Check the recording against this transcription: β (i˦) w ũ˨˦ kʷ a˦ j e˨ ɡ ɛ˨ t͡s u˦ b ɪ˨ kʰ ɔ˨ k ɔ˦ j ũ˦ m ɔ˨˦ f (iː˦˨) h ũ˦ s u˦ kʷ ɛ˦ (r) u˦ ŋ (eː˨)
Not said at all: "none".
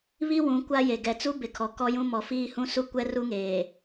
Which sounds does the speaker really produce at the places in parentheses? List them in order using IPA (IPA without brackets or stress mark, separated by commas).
i˦, iː˦, r, eː˨